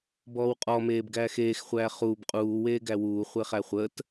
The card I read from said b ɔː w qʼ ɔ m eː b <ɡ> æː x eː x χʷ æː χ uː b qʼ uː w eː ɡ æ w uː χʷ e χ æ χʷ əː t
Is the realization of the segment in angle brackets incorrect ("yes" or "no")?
no